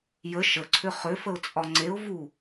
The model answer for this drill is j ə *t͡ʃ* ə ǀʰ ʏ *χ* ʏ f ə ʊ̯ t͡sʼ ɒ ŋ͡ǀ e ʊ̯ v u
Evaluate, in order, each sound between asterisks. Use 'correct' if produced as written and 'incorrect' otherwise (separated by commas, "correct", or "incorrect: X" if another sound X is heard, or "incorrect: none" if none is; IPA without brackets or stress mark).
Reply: incorrect: ʃ, correct